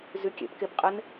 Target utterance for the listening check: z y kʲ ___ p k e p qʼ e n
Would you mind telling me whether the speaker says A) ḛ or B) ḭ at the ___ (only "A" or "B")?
A